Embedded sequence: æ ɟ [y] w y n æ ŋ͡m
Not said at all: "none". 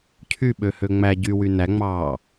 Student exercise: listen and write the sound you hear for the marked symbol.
y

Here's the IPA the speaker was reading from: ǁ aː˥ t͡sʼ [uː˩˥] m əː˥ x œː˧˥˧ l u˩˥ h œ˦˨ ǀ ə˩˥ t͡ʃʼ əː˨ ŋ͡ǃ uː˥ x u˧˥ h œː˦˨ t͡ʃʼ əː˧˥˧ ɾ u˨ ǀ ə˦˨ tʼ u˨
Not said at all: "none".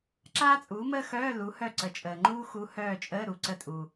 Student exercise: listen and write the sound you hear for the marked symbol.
uː˩˥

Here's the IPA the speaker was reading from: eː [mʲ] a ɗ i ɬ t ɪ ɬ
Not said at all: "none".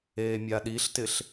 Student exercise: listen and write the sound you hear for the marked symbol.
mʲ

